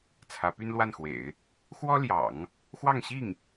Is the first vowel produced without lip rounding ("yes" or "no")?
yes